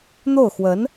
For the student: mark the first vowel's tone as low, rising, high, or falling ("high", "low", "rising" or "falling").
falling